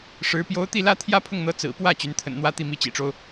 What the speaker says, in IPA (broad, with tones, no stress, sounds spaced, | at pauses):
ʂ ɻ̩˧˥ p j o˧˥ ʊ̯ t̪ i˥˩ l ä˥ t̪ʰ j ä˥ pʰ ʊ˥˩ ŋ n̪ ɤ˧˥ t͡s ɹ̩˨˩ p w ä˥˩ t͡ɕ y˧˥ n t̪ʰ ə̰˨˩ n n̪ w ä˥ t̪ i˥˩ m i˧˥ t͡ɕ ḭ˨˩ ʈ͡ʂ o˦ ʊ̯